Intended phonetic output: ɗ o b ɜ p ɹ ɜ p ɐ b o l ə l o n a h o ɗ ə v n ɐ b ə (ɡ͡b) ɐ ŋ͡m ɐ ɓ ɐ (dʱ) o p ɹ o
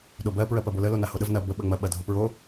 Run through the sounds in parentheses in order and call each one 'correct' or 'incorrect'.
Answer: incorrect: ɓ, correct

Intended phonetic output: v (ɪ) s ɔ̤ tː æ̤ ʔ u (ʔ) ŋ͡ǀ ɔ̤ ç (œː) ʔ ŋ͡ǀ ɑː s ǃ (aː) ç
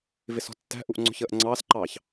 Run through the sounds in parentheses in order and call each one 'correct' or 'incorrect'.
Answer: correct, correct, incorrect: əː, incorrect: ɑː

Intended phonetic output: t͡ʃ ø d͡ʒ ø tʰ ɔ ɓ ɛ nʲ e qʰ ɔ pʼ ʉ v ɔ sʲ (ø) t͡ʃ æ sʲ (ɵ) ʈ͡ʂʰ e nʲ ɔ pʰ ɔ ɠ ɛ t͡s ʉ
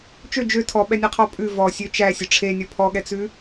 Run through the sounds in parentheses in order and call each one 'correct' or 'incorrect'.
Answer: correct, correct

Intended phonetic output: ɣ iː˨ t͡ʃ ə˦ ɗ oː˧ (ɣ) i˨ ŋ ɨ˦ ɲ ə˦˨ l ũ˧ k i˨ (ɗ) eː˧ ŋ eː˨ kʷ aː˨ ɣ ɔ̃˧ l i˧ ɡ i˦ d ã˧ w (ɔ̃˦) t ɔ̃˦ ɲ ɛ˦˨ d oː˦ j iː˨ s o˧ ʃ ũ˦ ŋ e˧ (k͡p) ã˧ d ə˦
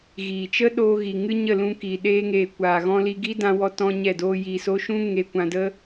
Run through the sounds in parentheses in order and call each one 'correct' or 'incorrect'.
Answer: correct, correct, incorrect: ɔ˦, incorrect: kʷ

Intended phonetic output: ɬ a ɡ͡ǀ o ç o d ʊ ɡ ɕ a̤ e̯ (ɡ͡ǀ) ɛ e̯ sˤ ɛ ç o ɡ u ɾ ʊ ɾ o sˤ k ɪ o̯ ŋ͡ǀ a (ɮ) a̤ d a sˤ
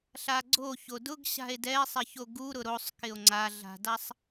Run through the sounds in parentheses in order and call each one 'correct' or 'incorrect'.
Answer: incorrect: d, correct

